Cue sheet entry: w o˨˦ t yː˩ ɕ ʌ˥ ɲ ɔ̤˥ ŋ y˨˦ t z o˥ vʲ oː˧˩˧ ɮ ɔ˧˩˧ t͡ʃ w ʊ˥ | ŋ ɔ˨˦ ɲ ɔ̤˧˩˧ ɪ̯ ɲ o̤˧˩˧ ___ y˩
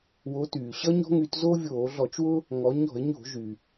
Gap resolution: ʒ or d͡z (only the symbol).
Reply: ʒ